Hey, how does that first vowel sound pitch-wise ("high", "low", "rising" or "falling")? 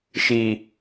low